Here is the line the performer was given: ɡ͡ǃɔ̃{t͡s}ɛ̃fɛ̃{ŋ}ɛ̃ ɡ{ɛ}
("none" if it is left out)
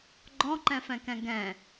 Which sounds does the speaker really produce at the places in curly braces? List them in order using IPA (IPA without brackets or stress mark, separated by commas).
ǃ, k, ɛ̃